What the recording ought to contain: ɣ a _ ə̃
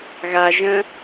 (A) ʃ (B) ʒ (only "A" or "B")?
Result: B